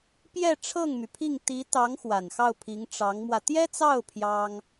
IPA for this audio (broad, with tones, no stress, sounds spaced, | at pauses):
p j ɛ˥˧ ʈ͡ʂʰ ɤ˥˩ ŋ m y˩ pʰ i˥˩ ŋ t̪ i˧˥ t̪ ɑ˧˥ ŋ x w a˨˩ n x ɑ˥˩ ʊ̯ pʰ i˧˥ ŋ ʈ͡ʂ ɑ˧˥ ŋ m w ä˧ t̪ j ɛ˥ t͡s ɑ˥˩ ʊ̯ pʰ j ɑ˥ ŋ